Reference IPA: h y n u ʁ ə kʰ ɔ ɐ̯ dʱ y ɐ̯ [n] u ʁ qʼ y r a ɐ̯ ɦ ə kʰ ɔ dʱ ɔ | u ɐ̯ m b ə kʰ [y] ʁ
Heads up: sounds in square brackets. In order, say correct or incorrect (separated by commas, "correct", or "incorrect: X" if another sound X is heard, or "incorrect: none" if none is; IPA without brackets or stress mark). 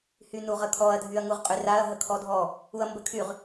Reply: incorrect: ŋ, correct